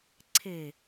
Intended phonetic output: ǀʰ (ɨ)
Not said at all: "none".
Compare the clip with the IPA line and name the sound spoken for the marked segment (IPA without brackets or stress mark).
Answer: e